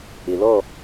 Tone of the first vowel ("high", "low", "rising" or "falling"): low